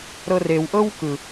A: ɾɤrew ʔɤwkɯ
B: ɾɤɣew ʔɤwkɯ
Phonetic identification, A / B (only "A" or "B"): A